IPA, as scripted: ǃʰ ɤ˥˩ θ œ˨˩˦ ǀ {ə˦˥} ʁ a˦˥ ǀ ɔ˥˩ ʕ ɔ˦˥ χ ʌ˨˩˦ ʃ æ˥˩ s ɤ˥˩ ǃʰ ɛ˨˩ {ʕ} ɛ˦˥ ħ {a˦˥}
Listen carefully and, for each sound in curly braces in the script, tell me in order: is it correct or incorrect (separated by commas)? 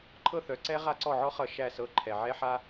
incorrect, correct, correct